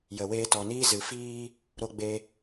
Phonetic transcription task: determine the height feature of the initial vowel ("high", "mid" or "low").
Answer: mid